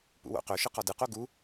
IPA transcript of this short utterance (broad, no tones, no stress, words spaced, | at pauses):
pṵwo̰qɵʃɯ qɒdɯqo ɡu